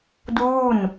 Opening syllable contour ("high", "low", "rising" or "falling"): falling